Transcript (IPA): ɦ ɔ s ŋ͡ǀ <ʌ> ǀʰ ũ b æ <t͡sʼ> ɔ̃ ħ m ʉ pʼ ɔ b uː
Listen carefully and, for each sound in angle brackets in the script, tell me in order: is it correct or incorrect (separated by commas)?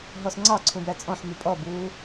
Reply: incorrect, correct